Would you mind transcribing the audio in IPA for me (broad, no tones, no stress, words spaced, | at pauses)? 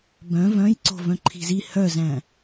bœ̃ vœ̃jǀo̤ vœ̃ǃʰi̤zi hœzæ̃